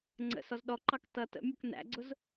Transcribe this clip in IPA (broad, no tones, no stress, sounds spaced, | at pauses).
ŋ͡ǀ ə̰ s ɔ z ɗ ɔ ǃ ɑ k t ʌ t ə̰ mʲ ʌ k n æ̰ ɡ͡ǀ ʊ z